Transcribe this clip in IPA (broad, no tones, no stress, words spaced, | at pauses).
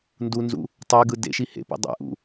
ndunzṵ | tˤeɡɯ dḛʃi hḛpḭ dˤɛ̰ʔṵ